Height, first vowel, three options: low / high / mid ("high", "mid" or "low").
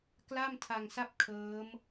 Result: low